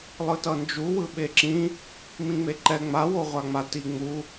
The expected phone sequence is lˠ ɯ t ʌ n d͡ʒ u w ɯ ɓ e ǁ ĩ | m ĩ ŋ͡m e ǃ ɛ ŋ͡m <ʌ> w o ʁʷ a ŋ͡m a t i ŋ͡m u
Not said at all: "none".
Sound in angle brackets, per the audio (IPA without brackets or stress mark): a